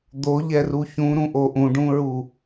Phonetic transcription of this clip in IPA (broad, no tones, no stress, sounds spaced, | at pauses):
d̪ o ʎ ɛ r u ç ũ ɾ ũ ʔ o ʔ ũ ɖ ũ ɹ u